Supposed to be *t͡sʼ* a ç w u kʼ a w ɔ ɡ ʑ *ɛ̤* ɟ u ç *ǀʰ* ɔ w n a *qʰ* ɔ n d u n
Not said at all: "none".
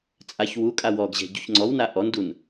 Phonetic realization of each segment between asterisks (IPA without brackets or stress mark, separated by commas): t͡sʼ, ɛ̤, ŋ͡ǀ, ʔ